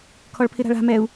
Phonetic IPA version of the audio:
kʰ ɔ ɭ pʰ ɪ ɾ a̤ ɭ a̤ m ɛ u̯

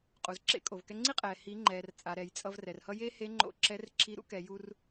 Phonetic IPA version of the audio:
qʼ u˩ z ǁ ḛ˧ kʼ o˩ v k ɛ˧ ŋ͡ǀ i˥ qʼ ɛː˩ h i˩˧ ŋ͡ǃ ɛː˩ r t͡sʼ a˩ ɾ ɛ˩ j t͡sʼ ʌ˧ v r ɛ˩ r h ʌ˥ j e˥ h e˧˥ ŋ͡ǃ o̰˧ ǁ ɛ˧˥ r ǁ i˧˥ ɾ ṵ˥ k ɛ˩˧ j u˧ r

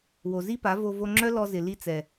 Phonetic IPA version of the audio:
w o˨ z i˦ p a˨˦ v o˧ v o˧ ŋ͡ǁ œ˦ l ɔ˧ z ɪ˨ l i˧ t͡s ɛ˨

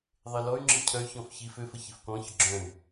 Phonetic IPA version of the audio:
ðˤ e l ɔ y̯ ŋ͡ǁ i cʰ œ y̯ ç ɔ̃ f ç i f ø f ə ç i f k ɔ̃ ç ə ɡ͡ǁ œ̃ y̯

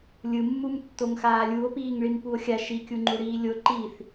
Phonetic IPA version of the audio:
lʲ ɯ mː u m tː o ŋ x aː lʲ u o̯ p iː ŋ ɭ i m p u o̯ xʲ a ʃ i kʲ u ŋ͡ǃ u ɽ iː lʲ o ǃ i θ

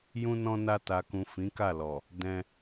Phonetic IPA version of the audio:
j ũ˧ n ɔ̃˧ n a˧ t a˨ k ũ˨ f ĩ˨˦ k a˦˨ l ɔ˨ | d ɛ̃˧

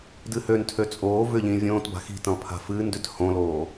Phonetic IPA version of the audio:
d ɨ h ø n tʰ ø t͡sʼ oː v ʏ ʎ ĩː vʲ õː t b a̤ x i̤ t ĩ lˠ pʰ a̤ f ɨː n d ʏ t h õ l oː

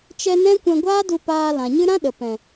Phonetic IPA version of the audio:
t͡ʃ ɛ˧ n ɛ̃˦ kʷ ɛ̃˧ ɡʷ aː˦ d u˧ p aː˧ l ã˨ ɲ ɨ˦ ɾ ã˦ ɗ ə˨ p ɛ̃˨

